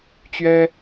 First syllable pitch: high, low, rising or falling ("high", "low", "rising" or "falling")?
high